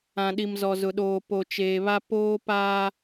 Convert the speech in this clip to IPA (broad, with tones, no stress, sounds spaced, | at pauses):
ã˨ ɗ i˨ m z ɔ˨ z ʊ˨ ɗ oː˨ p o˨ t͡ʃ eː˨ β a˦ p oː˦ p aː˦